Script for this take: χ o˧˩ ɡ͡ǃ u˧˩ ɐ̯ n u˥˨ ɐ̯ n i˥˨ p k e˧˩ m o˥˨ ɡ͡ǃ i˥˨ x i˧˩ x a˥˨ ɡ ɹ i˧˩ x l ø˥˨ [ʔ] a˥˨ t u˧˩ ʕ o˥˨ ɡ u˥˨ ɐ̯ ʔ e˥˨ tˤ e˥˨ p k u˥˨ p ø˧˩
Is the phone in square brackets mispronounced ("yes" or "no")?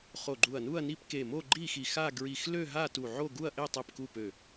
yes